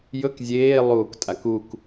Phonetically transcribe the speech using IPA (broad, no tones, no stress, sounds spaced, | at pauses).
j ɵ k zʲ eː lˠ uː k tʼ a k u k